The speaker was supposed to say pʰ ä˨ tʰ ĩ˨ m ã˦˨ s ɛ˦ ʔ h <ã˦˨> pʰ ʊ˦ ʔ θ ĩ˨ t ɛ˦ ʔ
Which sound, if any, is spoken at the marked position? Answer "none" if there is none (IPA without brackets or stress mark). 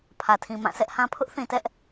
ã˦